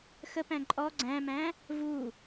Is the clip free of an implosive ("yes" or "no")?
yes